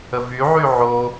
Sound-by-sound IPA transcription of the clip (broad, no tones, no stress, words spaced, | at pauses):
əvyʕy ʕo